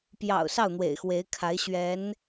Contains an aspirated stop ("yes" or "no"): yes